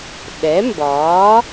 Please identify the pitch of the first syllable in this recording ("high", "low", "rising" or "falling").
rising